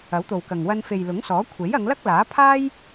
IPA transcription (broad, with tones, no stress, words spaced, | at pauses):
ɐ˨˥wt̪o˨wkɐ˨ŋ wɐ˧nfe˨j lʊ˨˥ŋsɔː˨˥ kʷʰe˨˥jɐ˨˧ŋlɐ˥k̚laː˨˥ pʰaː˥j